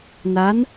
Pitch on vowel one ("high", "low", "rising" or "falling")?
rising